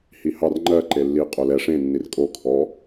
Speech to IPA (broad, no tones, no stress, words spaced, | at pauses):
hihɑr ŋ͡ǃɜ ǃelːi qʼolɛ ʂẽ nːirkʼo kʰɔ